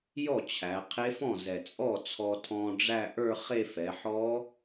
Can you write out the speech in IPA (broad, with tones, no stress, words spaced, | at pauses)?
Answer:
jɔ˥˩t͡ɕʰæ˩˧ qʰe˦˥fɔ̃˥˩zɛ˨˩ t͡sʼɔ˥˩ t͡sʰɔ˧tʰɔ̃˧ ɖ͡ʐæ˥˧ʔə˞˥˧χe˥˧ fɛ˩˧ħɔ˦˥